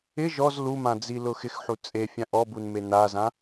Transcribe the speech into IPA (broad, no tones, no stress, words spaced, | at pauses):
ɪ ʒɔz lumãd͡zi lʊxɪxħu t͡sʼefʲã ʔɔbun menazã